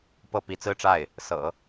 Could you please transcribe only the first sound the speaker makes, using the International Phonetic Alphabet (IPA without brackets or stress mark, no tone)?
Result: p